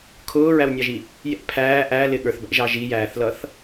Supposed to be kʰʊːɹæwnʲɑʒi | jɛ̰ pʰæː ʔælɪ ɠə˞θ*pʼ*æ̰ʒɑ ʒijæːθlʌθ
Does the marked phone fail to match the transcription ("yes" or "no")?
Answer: yes